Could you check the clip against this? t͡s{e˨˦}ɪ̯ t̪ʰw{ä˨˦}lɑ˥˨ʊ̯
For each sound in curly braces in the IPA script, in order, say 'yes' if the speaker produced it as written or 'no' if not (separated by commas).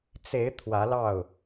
yes, yes